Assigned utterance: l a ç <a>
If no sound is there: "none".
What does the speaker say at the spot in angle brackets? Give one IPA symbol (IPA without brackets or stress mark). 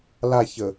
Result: ə